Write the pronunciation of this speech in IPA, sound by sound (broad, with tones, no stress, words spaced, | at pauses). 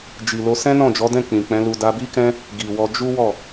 d͡ʒi˨lo˧ sɛ̃˦nɔ̃˦˨d͡ʒɔ˨˦dɛ̃˦˨ k͡pĩ˨k͡pɛ̃˨˦lu˧ da˧bi˦kɛ̃˦ | ɡi˨wɔ˧ d͡ʒu˦wɔ˦˨